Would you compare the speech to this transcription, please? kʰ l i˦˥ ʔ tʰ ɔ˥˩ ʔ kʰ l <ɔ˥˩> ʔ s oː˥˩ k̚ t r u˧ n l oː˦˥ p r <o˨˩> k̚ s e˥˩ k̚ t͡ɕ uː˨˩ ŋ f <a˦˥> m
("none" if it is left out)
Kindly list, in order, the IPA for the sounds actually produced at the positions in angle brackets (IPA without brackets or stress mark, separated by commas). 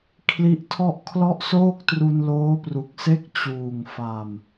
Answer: ɔ˥˩, u˨˩, a˨˩